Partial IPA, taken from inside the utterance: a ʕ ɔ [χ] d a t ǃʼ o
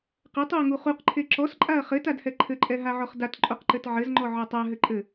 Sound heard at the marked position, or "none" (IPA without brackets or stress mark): χ